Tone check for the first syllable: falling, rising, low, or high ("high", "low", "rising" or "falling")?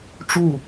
falling